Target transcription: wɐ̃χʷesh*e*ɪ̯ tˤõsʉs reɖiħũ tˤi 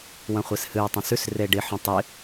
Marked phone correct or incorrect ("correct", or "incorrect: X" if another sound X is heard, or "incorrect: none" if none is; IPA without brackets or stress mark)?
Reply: incorrect: ɨ